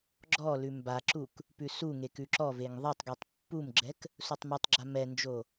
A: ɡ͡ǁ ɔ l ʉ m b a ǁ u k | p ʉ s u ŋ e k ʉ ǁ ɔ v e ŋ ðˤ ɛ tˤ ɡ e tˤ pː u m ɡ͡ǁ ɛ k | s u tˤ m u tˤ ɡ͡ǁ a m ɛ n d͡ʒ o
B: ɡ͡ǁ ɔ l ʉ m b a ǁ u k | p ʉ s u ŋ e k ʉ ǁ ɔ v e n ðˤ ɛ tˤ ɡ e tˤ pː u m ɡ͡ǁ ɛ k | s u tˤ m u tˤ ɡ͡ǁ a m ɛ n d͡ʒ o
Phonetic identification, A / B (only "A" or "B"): A